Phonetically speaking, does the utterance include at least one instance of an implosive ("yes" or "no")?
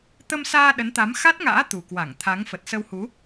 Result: yes